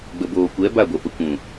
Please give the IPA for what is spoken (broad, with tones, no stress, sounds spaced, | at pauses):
ɡ͡b ə˨ b oː˨ kʷ ɛ˨˦ b a˦˨ ɡʷ ɛ˨ p ə˨ kʷ ũ˨